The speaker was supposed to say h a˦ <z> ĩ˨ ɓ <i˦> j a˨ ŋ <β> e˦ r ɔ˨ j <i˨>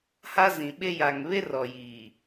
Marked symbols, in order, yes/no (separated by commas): yes, no, yes, no